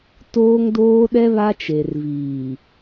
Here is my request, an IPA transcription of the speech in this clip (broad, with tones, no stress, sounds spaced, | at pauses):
t oː˦ ŋ d oː˦ ɗ ɛ˦ β a˦ t͡ʃ e˨ r v iː˨